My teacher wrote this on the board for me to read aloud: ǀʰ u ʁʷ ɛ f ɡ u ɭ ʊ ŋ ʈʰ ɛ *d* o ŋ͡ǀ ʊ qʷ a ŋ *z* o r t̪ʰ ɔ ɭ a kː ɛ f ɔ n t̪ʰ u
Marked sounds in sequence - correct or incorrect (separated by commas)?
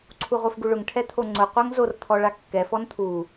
incorrect, correct